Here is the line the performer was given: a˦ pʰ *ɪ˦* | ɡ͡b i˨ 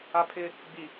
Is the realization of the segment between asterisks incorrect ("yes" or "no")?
no